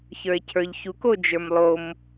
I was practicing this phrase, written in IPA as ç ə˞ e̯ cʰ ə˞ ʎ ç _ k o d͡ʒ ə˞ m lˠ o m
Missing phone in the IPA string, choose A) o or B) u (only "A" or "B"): B